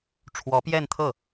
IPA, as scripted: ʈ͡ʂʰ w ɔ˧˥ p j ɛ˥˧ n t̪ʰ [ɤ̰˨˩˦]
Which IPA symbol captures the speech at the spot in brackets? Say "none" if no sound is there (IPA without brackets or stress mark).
ɤ˥˩